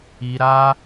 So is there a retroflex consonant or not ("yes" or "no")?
no